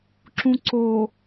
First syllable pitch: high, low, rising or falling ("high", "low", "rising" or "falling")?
low